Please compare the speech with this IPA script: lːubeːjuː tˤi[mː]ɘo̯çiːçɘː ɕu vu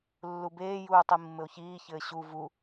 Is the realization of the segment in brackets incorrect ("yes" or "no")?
no